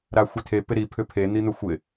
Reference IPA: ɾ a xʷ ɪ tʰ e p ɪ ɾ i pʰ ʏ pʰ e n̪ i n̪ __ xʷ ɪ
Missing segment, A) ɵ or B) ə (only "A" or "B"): A